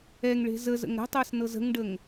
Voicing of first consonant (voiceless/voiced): voiced